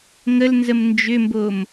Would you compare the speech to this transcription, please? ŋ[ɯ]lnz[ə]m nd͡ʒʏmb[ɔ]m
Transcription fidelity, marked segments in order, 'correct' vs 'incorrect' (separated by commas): incorrect, correct, incorrect